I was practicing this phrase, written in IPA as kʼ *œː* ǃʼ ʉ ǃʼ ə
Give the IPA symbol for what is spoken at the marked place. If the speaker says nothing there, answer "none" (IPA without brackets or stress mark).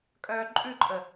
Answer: œː